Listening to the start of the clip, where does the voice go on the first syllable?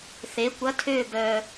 rising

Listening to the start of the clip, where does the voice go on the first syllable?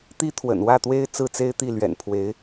high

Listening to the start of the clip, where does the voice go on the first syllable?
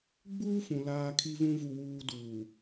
high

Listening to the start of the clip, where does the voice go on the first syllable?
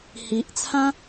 low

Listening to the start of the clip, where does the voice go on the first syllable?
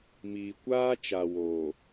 low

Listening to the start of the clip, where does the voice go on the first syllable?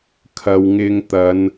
low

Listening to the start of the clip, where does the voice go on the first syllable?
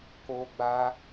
high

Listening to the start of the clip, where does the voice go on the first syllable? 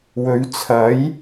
rising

